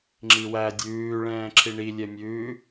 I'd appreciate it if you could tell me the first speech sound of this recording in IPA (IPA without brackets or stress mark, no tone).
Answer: ŋ͡ǁ